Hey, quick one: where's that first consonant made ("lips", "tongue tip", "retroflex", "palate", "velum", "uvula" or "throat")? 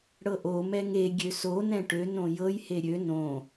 retroflex